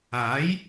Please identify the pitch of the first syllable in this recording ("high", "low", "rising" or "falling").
rising